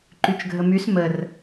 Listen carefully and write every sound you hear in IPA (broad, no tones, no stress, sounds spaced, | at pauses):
ǃ y t͡ʃ ɡʱ ə m y s m ə r